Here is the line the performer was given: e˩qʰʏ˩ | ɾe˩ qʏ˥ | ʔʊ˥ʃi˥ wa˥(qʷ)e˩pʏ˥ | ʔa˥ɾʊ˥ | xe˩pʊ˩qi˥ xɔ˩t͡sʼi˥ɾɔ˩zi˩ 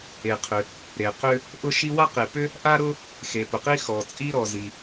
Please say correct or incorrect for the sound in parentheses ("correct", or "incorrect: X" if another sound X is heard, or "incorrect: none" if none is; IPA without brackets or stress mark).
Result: incorrect: q